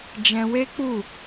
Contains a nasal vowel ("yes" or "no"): yes